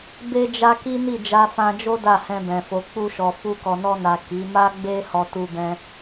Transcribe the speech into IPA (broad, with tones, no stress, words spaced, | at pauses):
be˦d͡ʒa˦ ki˦ ni˦˨d͡ʒa˧fã˧d͡ʒo˦ da˦˨hɛ̃˧bɛ̃˨ fo˨k͡pu˧ʃɔ˨ fu˧kɔ˨nɔ˧na˨ ki˨˦ ma˦ɡ͡be˦ hɔ˧tu˧bɛ̃˧